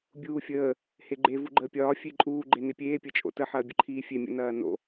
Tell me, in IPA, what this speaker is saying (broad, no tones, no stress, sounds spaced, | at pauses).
bʲ uː fʲ əː | h e ɡ͡ǃ e v u ɡ͡ǃ əː pʲ ɒː fʲ e ǃʼ uː ɡ͡ǃ e n e pʲ eː pʲ ɐ t͡ʃʼ o̰ t ə ħ ɐː bʲ ə ǃʰ iː fʲ e mʲ ə̰ n ɐː n o̰